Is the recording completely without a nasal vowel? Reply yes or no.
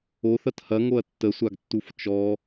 yes